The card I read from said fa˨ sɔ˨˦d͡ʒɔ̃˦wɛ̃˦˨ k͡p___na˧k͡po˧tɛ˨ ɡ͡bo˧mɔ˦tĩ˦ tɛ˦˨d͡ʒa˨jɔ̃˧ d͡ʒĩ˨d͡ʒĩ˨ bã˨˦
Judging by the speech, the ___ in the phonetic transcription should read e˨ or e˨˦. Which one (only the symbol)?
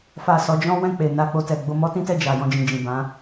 e˨